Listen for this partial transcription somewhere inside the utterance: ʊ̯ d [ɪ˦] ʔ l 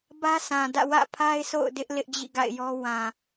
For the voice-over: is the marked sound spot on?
yes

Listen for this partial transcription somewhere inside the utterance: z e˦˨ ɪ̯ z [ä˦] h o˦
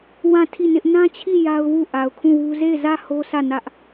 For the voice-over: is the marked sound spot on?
no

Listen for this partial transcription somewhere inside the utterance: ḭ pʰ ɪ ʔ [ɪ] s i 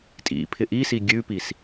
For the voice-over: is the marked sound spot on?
no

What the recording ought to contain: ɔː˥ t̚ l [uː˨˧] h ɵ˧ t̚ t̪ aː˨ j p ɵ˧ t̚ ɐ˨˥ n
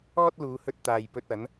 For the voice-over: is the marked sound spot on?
yes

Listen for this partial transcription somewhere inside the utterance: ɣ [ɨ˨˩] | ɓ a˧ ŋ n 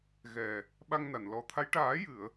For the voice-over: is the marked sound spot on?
no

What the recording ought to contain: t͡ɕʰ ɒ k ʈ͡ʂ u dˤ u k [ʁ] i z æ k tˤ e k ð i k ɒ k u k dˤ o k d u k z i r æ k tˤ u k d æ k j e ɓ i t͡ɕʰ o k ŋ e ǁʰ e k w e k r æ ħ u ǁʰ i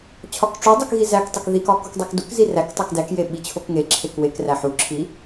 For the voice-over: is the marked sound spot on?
no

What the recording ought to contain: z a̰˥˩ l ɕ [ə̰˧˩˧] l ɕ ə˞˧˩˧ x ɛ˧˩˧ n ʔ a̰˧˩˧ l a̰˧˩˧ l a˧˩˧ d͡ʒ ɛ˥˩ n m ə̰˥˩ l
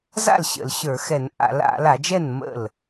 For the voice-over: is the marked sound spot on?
yes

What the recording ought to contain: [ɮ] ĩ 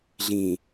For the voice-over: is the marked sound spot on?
yes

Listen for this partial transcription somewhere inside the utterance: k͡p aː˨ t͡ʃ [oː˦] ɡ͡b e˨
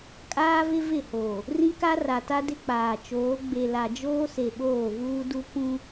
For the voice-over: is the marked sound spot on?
no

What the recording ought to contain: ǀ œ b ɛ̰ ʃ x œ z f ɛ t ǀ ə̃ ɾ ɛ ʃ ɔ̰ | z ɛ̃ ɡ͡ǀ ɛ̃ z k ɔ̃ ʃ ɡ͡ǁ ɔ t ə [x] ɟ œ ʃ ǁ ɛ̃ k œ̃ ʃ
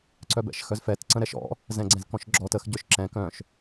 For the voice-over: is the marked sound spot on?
yes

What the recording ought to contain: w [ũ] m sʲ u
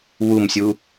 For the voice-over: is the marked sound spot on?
no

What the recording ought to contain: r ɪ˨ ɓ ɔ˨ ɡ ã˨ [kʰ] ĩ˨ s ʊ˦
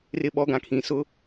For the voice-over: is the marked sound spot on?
yes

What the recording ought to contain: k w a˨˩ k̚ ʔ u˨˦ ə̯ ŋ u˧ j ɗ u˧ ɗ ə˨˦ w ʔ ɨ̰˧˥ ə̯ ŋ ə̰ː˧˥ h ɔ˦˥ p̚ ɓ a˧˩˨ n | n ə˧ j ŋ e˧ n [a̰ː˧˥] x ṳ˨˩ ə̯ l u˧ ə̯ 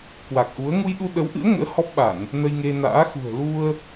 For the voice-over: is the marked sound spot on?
yes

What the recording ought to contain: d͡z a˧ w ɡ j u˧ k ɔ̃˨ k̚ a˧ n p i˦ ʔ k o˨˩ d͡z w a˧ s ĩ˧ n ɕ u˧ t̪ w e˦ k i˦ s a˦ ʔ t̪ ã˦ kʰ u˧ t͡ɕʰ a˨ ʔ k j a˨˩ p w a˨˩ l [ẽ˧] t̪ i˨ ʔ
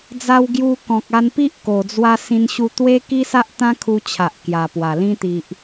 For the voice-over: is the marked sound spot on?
no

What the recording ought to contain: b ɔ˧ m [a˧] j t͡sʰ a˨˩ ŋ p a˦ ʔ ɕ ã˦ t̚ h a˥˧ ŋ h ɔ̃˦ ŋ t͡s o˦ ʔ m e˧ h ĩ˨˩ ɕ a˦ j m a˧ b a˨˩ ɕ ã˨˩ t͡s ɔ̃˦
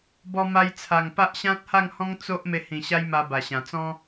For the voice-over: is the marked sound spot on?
yes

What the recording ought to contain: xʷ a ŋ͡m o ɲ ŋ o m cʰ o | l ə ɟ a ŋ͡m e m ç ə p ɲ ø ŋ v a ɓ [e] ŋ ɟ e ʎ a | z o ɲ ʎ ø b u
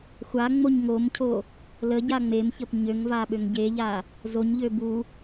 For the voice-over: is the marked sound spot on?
no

